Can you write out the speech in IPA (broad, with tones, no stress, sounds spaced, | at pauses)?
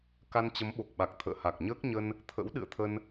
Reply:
k a˧ n t͡ɕ ə˨˦ m ɓ o˨˩ k̚ ɓ a˨˩ k̚ t̪ʰ ə̰ː˧˨ h a˨˩ k̚ ɲ əː˦˥ k̚ ɲ ə˧ n | t̪ʰ ə̰˧˥ w ɗ ɨ̰˧˨ ə̯ t̪ʰ ə˧ n